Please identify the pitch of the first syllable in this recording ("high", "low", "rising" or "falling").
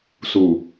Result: low